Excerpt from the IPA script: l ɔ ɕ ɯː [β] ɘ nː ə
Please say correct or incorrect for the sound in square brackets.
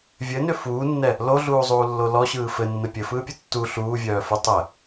incorrect